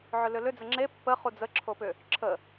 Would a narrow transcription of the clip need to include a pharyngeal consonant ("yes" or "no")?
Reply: yes